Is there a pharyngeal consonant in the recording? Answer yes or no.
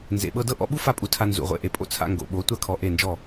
no